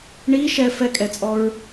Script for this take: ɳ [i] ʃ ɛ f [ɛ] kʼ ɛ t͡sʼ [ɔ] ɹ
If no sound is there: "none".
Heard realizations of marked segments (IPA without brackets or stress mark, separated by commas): i, ɛ, ɔ